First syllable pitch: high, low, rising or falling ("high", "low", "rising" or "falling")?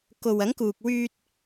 low